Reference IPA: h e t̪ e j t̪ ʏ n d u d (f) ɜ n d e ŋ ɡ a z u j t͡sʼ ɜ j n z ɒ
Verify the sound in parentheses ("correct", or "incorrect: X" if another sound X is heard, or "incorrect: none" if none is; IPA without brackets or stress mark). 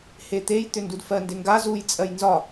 correct